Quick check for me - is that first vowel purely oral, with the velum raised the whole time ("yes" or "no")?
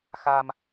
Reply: yes